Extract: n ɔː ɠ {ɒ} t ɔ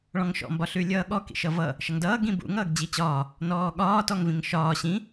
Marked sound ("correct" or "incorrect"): incorrect